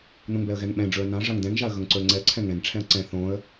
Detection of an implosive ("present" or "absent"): present